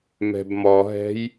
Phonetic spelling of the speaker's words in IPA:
m ɛ̤ b m ɔ ɦ ɛ̤ j

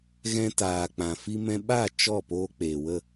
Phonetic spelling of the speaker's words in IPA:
ɣ ɛ̃˧ t aː˨ k͡p ã˨ f i˧ m ɛ̃˧ ɓ a˦˨ t͡ʃ ɔ˦˨ p oː˧ k͡p eː˨ w ə˦˨

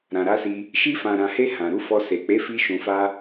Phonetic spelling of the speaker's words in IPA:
ɾ ã˨ ɾ a˨˦ s i˧ | ʃ i˧ f ã˨ ɾ ã˨ h e˧ h ã˨ ɾ u˨˦ f ɔ˧ s e˨ k͡p e˨˦ f i˧ ʃ ũ˨ f a˧

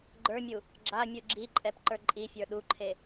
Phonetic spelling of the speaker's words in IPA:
ɡ͡ǃ ə˞ mʲ u | ɡ͡ǁ a mʲ u ɡ͡ǁ i ǃʼ ɛ p ǃ ə˞ ǃʼ i fʲ ə˞ ɗ u ǃʰ e

